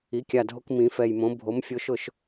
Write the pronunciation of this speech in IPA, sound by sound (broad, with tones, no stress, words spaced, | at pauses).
i˩˥kʲa˨˩dʱo˦k mĩ˩˧fɛ˨˩jmõ˩˥ bʱo˩˥m fʲo˩˥ʃʊ˥˩ʃ